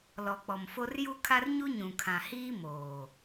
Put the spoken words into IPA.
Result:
l ɔ˨ k͡p ɔ˨ m f o˦ r j u˦ kʰ a˦ r ɲ u˦ ɲ ũ˨ kʰ ã˨ h iː˦ m oː˨

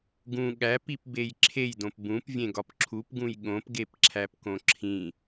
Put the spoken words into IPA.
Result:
ɡ ũ ɠ æ p i p b e j ǁʰ e j d õ p b ũ p vʲ ẽ ɡ ɒ p ǁʰ u p ɡ ũ j ɠ õ p ɡ e p ǁʰ æ p k õ ǁʰ ĩ

